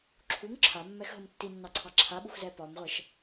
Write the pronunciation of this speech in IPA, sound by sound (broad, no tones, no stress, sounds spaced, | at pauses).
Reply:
ǁʰ u ŋ ǁʰ a mː ɛ x ɦ ə m tː i nː ɑ ǀʰ ɑ ǁʰ a ɓ u x z ɛ p ɒ m ʁʷ ɛ ʃ